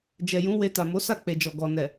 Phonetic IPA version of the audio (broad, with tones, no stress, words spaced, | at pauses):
d͡ʒɛ˨jũ˨˦ we˧ta˨ mo˨˦sa˦˨k͡pe˨d͡ʒɔ˨ ɡɔ˨ nɛ˨